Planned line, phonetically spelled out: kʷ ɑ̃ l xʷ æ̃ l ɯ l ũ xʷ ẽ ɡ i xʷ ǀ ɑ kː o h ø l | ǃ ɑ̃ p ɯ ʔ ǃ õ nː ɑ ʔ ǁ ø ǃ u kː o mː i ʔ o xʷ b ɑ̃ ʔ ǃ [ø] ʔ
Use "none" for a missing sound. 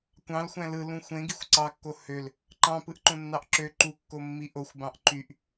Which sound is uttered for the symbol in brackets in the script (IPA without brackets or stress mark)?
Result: y